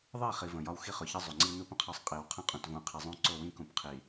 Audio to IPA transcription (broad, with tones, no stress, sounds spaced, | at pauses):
ðˤ i˦˨ χ i˨ v ə̃˨ j ɒ˦ w x i˦ χ ʊ˨ ç ə˦ zˤ u˨ ŋ͡ǀ i˦ n u˦ p ə̃˨ qʰ ɒ˦ sˤ qʼ i˨ w qʰ ə̃˦ qʼ ũ˨ t v ũ˨ qʰ i˨ zˤ ũ˦ ǀ ʊ˦˨ w ĩ˦ k ũ˨ p qʰ i˨